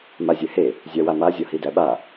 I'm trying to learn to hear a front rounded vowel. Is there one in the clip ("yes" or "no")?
no